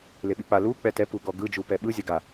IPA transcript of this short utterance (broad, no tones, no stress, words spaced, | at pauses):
leɓik͡pa lu k͡pɛtɛ puɡɔɡɯ d͡ʒupɛɓɯ zʲaɡa